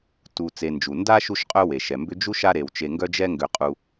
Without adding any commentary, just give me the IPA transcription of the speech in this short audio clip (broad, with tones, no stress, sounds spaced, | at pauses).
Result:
t u˨ t͡s e˨ n d͡ʒ u˩ n d a˦ ʃ u˦ ʃ qʼ œ˦ w e˩ ʃ ɛ˩ m b ʏ˥ d͡ʒ u˥ ʃ a˦ ɾ e˩ w t͡ʃ e˨ ŋ ɡ œ˦ d͡ʒ ɛ˦ ŋ ɡ ʏ˨ qʼ u˨